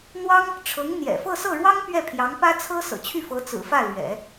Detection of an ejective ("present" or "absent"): absent